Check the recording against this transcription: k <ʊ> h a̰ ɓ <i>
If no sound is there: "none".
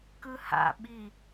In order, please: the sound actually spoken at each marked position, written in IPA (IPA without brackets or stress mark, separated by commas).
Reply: ɯ, i